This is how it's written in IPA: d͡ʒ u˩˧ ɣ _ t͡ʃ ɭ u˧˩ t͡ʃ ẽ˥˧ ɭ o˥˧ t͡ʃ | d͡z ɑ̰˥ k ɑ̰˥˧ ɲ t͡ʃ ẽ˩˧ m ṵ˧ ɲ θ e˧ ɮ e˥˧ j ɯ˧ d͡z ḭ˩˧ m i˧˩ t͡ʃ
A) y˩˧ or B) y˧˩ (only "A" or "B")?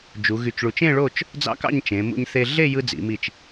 B